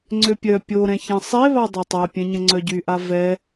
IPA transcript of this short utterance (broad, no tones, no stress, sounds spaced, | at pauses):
ŋ͡ǀ ø pʲ œ pʲ o ɾ ɛ̃ ç ɛ̃ sˤ e β a dˤ e tˤ a pʲ ɛ̃ ɲ ə̃ ŋ͡ǀ œ ɟ y ʔ a v ɛ